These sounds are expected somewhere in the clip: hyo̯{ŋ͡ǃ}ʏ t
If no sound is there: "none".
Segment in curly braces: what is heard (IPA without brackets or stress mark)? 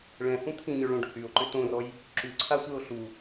ǃ